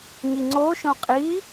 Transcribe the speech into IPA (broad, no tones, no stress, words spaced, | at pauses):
ɲiŋ͡ǀoʃõ qʼi